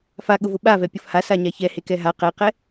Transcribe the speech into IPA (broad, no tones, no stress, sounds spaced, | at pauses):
f a ɠ ʊ v ʊ ɓ a v ɛ pʲ ʊ f h a s a ɲ a ç ɛ h e k ɛ ɦ a q ɛ q ɛ